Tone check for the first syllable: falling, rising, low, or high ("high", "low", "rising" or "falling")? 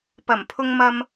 low